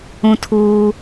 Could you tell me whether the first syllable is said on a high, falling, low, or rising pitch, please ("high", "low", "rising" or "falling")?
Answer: high